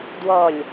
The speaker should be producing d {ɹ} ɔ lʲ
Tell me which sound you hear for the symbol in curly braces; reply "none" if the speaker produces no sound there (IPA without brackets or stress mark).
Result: w